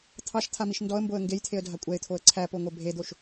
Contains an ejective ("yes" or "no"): yes